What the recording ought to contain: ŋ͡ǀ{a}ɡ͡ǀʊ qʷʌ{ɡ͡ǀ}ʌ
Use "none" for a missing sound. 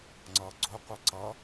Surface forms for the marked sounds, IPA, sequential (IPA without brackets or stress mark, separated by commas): ʌ, ǀ